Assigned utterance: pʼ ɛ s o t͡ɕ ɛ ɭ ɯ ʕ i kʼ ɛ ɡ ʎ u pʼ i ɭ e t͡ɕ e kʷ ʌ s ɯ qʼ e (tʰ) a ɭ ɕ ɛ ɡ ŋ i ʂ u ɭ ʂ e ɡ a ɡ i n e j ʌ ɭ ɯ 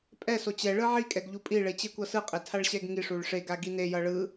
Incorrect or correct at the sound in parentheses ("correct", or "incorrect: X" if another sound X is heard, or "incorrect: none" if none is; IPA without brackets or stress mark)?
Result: correct